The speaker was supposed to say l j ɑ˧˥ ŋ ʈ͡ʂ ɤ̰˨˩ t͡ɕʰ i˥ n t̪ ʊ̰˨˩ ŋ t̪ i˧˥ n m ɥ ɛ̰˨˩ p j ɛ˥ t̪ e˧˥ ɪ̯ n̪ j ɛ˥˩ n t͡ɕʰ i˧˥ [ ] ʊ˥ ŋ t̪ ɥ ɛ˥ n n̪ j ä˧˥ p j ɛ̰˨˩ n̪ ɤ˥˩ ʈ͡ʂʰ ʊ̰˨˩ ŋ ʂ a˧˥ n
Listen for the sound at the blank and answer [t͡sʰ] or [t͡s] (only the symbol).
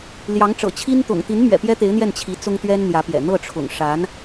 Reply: t͡s